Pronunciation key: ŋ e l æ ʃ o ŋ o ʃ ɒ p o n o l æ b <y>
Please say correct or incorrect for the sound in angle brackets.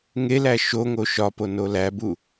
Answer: incorrect